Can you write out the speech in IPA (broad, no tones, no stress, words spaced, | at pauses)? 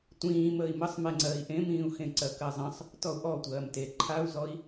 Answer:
tʷĩː məːi̯məsˤmɛŋ͡ǀɜːi̯ ʔẽmĩːu̯xẽ ǀɜkɜzˤə̃sˤ | tɔu̯ʔɔtʷɜːm te ǃʰau̯zɔi̯